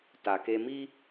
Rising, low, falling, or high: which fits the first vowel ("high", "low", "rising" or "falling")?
low